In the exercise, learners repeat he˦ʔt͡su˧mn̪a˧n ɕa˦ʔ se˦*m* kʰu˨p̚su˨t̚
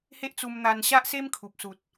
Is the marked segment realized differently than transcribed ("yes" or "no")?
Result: no